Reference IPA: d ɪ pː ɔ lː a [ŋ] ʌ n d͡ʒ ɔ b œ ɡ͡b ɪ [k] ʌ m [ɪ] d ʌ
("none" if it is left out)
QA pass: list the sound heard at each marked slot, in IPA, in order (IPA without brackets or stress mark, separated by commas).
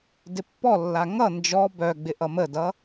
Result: ŋ, ʔ, ə